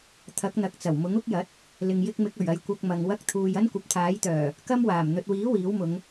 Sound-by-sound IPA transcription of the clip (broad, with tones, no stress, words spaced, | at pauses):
t̪ʰɐ˨˥k̚ n̪ɐ˨k̚t͡sɐ˨˩wmʊ˨˥ŋ ʊ˥k̚jɐ˨˥t̚ | lɪ˨ŋjɪ˧k̚ mɪ˨˥k̚ɵ˨˩ɥɐ˨j kʷɐ˧k̚mɐ˨ŋ wɐ˧k̚t̪ʰuː˨j ɐ˥nkʷɐ˨p̚t̪ʰaː˨˥jt̪œː˨˩ | kɐ˥mwaː˨˩m n̪ɵ˨t̚wiː˨˥ wiː˨˥wmʊ˨˧ŋ